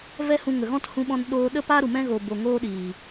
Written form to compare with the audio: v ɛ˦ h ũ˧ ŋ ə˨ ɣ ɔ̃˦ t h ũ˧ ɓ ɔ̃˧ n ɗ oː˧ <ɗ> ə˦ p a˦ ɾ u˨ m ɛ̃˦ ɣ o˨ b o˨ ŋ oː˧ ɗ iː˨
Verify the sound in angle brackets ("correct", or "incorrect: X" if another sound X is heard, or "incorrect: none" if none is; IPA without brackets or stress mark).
correct